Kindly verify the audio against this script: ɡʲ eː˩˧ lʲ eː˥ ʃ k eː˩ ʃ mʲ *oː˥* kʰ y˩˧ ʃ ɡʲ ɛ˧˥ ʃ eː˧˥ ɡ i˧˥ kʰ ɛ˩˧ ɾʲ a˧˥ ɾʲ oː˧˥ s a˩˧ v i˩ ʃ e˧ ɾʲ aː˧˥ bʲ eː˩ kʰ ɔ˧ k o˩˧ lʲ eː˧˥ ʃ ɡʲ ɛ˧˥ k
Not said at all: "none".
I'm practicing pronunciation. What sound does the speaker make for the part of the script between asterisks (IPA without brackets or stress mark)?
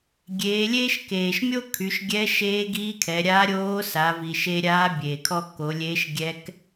o˥